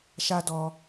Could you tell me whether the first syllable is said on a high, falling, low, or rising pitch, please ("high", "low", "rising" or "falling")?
high